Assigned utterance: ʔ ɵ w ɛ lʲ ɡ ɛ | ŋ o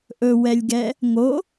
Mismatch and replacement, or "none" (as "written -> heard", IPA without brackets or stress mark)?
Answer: none